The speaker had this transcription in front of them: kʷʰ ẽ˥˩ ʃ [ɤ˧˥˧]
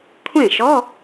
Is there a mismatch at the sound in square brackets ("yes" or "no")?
yes